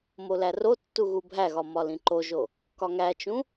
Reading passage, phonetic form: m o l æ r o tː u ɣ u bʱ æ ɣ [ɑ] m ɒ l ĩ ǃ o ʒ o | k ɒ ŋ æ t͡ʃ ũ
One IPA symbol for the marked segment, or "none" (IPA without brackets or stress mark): ɒ